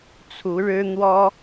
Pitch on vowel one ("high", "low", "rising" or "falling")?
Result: rising